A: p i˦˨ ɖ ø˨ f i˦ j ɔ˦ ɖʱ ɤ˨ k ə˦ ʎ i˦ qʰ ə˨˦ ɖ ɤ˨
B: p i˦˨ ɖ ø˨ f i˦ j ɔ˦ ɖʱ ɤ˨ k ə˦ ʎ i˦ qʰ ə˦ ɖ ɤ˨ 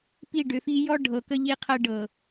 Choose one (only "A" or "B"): B